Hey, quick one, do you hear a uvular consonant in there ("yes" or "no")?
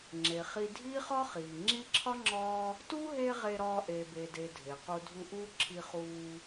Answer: yes